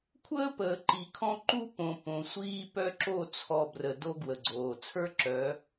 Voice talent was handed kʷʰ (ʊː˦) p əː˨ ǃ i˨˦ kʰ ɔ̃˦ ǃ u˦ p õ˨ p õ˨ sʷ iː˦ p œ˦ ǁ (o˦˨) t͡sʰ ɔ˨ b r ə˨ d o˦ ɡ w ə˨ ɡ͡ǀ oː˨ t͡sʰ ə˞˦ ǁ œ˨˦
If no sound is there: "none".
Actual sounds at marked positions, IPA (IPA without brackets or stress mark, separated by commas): əː˦, o˦˨